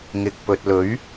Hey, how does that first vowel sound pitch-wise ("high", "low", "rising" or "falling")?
low